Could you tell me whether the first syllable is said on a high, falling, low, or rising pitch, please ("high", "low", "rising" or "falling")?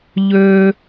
high